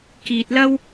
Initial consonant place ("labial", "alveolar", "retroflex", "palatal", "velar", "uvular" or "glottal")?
velar